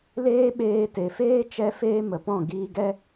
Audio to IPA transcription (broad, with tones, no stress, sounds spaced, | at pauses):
l eː˦ ɓ eː˧ t e˨ f eː˦ t͡ʃ ɛ˦ f eː˦ m ə˨ p ɔ̃˦˨ ɡ iː˧ ɡ ɛ˦